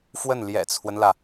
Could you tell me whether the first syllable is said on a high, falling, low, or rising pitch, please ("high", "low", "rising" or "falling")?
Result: falling